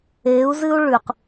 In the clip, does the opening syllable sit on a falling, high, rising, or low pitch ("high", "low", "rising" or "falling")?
rising